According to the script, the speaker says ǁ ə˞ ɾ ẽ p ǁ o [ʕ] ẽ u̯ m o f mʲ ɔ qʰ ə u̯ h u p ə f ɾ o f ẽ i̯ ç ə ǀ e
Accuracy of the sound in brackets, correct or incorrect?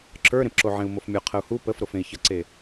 correct